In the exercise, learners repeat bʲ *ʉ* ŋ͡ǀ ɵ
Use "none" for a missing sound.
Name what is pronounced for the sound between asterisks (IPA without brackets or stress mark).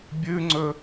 ʉ